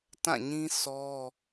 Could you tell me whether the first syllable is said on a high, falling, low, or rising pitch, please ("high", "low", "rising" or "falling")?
falling